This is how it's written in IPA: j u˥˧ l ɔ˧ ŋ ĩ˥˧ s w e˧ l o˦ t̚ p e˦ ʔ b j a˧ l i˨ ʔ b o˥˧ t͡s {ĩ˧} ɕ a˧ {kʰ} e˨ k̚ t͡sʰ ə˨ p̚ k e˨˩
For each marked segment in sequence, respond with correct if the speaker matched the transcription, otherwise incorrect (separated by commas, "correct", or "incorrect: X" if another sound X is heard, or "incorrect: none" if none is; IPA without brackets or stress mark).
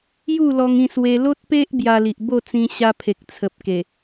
correct, incorrect: pʰ